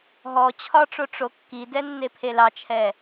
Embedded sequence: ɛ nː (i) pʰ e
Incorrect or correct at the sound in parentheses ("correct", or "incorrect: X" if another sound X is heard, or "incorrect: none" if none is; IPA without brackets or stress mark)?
incorrect: e